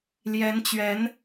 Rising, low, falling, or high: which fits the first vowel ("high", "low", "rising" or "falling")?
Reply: rising